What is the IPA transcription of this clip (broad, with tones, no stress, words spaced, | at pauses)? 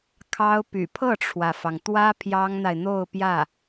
kʰɑ˥ʊ̯py̰˨˩ pʰɤ˥˩ʈ͡ʂʰwä˩fɑ˩ŋ t̪wä˥ pʰjɑ˥ŋn̪a˨ɪ̯n̪o˥˧ʊ̯pjä˥˩